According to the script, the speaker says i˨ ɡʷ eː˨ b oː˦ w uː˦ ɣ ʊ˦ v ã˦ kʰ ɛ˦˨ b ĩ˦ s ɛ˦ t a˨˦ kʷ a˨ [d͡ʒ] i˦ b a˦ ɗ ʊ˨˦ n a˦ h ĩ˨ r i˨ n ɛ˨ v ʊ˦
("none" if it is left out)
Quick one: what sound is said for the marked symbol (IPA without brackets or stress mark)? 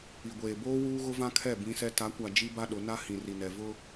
d͡ʒ